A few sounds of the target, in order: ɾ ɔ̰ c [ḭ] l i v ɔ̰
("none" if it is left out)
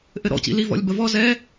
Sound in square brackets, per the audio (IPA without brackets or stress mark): ḭ